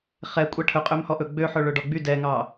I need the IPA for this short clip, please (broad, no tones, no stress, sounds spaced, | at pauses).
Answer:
χ ɛ kʷʼ ɛ ʈʰ ɵ qʼ ø m h ɔ ʔ ɵ ɡ͡b ø ħ ɵ ɭ ø ɖ ɔ ɡ͡b y d ɛ ŋ ɑ